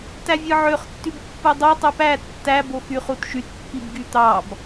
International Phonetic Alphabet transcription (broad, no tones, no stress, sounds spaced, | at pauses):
t æ vʲ ɯ ʕ ø χ tː y b pː ɯ dˤ u tˤ ɯ p æ tː æ b o x y χ u t ʃ y t pː i b ɡ y t̪ ɑ b